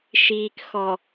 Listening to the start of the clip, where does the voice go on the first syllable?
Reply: low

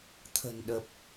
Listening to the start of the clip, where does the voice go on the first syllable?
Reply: low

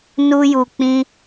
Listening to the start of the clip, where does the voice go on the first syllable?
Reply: high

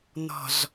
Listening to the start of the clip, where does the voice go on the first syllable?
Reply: low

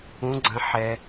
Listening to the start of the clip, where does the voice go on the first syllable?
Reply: rising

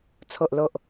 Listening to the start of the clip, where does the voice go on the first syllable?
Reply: low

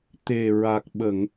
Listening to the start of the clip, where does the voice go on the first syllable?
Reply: low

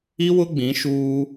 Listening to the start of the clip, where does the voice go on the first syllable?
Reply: high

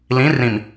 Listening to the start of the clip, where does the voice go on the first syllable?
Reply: rising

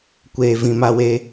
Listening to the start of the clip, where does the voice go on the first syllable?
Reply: low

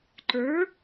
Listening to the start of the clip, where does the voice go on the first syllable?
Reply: rising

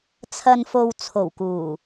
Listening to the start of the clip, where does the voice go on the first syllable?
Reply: low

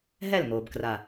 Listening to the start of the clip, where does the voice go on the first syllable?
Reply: falling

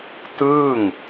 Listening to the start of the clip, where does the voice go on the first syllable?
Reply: falling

